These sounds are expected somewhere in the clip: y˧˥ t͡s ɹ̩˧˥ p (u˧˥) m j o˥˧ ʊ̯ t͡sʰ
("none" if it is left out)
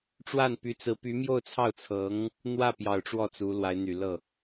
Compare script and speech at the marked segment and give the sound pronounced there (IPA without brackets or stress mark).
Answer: y˧˥